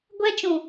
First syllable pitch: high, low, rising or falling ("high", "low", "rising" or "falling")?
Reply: high